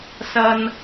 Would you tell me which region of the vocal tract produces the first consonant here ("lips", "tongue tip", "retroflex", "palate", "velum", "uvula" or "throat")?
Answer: tongue tip